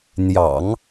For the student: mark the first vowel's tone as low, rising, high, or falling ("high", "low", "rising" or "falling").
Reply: low